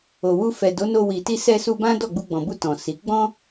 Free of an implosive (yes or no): yes